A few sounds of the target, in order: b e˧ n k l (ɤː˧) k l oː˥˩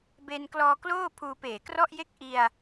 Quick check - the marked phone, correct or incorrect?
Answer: incorrect